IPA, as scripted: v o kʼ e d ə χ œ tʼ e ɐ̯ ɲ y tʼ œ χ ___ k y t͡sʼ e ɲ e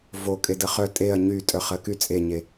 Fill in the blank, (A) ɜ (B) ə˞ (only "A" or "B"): A